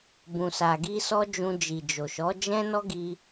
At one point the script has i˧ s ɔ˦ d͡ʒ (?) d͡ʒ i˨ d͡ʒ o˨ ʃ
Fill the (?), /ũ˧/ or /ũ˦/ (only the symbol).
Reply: ũ˧